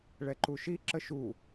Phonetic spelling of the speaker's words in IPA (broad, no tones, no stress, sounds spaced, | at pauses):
ɭ ɛ ǃ u ʃ i ǁ ə ʃ u